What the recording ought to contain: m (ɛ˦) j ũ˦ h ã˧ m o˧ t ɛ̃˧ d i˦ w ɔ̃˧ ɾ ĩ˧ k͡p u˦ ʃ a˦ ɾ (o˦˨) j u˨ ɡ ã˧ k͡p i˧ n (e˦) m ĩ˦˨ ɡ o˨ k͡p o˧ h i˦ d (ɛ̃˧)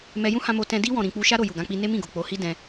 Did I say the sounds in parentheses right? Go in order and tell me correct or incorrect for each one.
incorrect: ɛ˧, correct, correct, correct

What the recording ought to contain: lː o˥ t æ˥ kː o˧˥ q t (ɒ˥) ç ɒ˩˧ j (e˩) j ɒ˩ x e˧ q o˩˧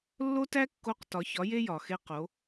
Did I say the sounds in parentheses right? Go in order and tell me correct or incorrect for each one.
incorrect: ɒ˩˧, incorrect: e˧

